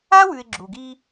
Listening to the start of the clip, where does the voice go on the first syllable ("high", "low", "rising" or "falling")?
high